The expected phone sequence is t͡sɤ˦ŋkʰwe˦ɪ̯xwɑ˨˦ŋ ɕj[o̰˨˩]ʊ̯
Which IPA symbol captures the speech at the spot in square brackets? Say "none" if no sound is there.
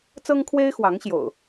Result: o̰˨˩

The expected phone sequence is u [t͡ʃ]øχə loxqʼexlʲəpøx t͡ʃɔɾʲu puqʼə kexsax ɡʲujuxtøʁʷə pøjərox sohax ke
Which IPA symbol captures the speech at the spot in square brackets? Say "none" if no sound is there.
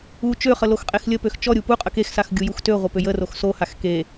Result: t͡ʃ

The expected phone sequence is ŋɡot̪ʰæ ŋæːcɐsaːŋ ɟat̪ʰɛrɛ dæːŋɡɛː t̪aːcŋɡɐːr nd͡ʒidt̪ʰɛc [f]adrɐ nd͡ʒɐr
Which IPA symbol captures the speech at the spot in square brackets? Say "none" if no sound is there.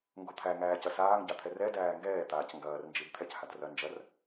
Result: h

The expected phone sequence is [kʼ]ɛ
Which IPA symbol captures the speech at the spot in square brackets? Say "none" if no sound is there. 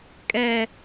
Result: kʼ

